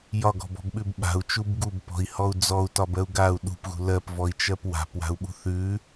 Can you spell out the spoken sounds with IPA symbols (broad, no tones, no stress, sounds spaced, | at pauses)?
j ɒ ɡ ɔ̤ b ɔ̤ b ɓ ʉ b ɓ a̤ u̯ t͡ʃ u b ɡ u b p ɔ̤ i̯ h ɔ u̯ d͡z ɔ u̯ t ɒ b ɜ u̯ ɡ a u̯ ɗ ṳ p ɣ ṳ l ɜ p v ɔ i̯ t͡ʃ ɜ p w a̤ p w a̤ u̯ ɓ ṳ θ ʉ